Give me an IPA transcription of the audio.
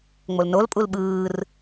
ŋ͡m o l n o l pʼ u l ɓ ɯː r

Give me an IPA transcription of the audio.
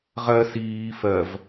ʁ ɜ s iː f ɜ v

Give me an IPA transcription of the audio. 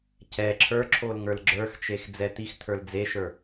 c ɛ ǁʰ ə˞ ǁʰ o l ŋ ə˞ l ɡ͡ǁ ə˞ x t͡ʃ e x d͡z ɛ t̪ i x t̪ʰ ə˞ l d͡z e ʃ ə˞

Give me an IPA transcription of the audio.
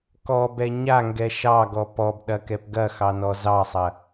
k ɔ b ɛ ɲ a ŋ ɡ ɛ ʃ ɑ ɡ ɔ p ɔ b ɗ ɐ k ɛ p ɡ ɐ x ɑ n ɔ z ɑ sˤ ɐ

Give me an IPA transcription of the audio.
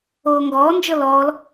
oː ŋ ɡ ɔː n d͡ʒ ɤ l ɔː l

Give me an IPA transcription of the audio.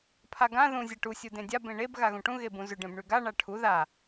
pʰ a ɡ ã ð ũ zʲ a ʈ u sʲ u d ẽ dʲ a b ẽ ɳ e b ɣ a ɣ ũ ʈ ũ ɣ e b ũ z ʏ ɖ ẽ b ɳ ʉ ɡ a ɳ a ʈʰ u ð a

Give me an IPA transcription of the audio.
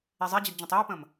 i zˤ i d͡ʑ i d d͡ʑ ə̃ tˤ i u̯ p ə̃ m

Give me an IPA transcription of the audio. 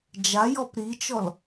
d͡ʒ a j ɔ p ɾ i t͡ʃ ɔ l

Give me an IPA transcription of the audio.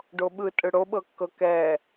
ɖ o ɓ ɯ tʼ ɯ ɽ o ɓ ɤ kː ɤ k ɛ

